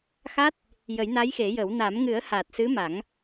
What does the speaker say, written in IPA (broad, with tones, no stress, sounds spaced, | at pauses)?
x a˦˥ t̚ | j ə˨˩˦ j n a˧˥ j x e˨˩˦ j ə˨˩˦ w n a˨˩˦ m ŋ ɨ˨˩˦ ə̯ h aː˨˩ t̚ s ɨ˧˥ m a˨˩˦ ŋ